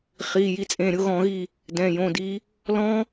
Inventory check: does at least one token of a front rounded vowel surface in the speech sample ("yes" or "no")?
no